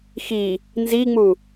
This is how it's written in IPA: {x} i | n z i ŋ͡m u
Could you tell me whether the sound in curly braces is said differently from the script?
no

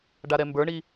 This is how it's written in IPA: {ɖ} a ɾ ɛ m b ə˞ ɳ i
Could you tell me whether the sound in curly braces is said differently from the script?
no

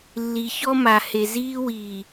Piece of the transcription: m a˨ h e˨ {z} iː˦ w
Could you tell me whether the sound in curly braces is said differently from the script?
no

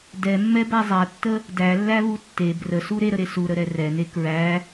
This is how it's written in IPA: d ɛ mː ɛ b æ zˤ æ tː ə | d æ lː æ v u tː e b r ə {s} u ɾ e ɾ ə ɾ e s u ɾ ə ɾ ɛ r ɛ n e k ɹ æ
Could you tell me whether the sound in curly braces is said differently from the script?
no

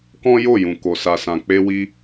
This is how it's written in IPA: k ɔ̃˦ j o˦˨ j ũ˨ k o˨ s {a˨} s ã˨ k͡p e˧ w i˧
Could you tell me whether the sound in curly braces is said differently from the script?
no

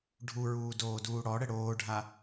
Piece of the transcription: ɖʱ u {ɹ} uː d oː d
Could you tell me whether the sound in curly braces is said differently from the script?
no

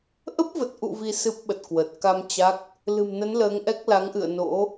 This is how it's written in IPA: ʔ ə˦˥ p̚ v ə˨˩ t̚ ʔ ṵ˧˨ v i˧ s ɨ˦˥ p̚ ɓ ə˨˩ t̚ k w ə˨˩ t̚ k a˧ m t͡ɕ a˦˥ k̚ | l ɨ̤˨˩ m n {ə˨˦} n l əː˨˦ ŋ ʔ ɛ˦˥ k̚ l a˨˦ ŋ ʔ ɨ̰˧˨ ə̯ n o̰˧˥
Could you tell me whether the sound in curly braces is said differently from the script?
no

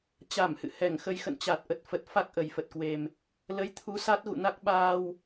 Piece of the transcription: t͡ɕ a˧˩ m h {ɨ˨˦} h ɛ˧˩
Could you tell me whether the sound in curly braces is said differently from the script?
yes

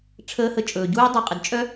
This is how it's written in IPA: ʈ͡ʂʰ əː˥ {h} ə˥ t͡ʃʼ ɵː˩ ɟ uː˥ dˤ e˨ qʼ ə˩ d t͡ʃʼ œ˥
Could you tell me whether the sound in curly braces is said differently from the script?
no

